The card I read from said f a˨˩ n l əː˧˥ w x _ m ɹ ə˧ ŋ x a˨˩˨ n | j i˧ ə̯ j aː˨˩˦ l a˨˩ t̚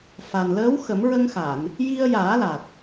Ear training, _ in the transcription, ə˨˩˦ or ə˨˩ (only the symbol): ə˨˩˦